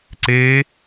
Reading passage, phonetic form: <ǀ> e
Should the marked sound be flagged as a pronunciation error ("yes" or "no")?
no